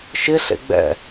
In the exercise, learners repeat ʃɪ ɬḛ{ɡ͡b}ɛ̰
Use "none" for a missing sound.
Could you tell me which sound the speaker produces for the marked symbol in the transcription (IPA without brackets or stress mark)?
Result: ɡ͡b